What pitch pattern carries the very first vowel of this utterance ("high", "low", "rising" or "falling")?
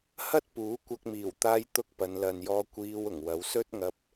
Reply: high